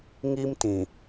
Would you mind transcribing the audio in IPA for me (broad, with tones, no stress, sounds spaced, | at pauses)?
ŋ i˦ m t ĩ˨